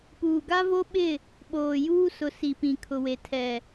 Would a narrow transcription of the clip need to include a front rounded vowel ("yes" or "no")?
no